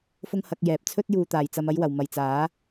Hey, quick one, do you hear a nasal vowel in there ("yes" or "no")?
no